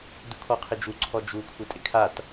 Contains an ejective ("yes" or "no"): yes